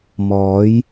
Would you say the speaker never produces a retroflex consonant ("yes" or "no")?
yes